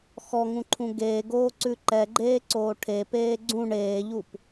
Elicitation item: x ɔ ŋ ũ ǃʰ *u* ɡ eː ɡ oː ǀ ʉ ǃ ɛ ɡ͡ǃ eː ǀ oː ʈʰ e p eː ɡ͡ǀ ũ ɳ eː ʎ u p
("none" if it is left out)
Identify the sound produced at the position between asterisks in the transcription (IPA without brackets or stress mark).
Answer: ũ